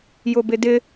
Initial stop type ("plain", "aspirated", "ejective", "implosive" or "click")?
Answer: plain